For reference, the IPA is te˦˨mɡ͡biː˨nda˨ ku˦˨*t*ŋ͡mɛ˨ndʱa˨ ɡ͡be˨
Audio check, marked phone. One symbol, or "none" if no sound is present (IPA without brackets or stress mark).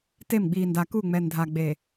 none